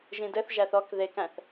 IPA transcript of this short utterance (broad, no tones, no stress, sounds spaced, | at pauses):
ʒ ĩ d ɘ θ ʒ æ θ ɔ k ð e k æ̃ θ